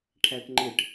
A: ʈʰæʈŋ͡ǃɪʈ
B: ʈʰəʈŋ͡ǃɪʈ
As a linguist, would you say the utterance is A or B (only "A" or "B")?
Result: A